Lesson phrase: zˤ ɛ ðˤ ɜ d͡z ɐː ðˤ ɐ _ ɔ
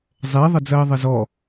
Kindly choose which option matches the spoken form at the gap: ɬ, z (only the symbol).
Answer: z